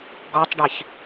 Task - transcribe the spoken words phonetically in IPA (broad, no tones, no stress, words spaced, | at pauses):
ɡɔtˤɖɛç